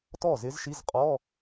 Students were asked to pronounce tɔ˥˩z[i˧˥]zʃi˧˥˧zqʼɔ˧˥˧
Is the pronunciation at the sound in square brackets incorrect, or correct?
incorrect